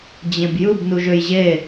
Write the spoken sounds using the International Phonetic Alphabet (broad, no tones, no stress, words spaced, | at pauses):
d͡ʑẽbjɯb nuʒøjʑe